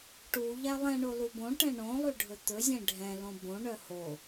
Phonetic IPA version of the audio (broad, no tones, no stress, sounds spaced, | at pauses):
ʈ u ʎ æ lˠ ɛ̃ ɳ o l u b õ ʈ ɛ̃ ɳ õ lˠ y ɖʱ ɵ t̪ ɵ zʲ ɛ̃ ɖʱ ɛ̃ l õ b õ ɳ œ h o